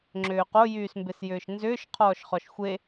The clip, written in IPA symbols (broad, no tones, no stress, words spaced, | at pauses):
ŋ͡ǁʏːqo jyːsmbesjʏːʃnzʏːʃ qʰɔːʃχɔʃxʷe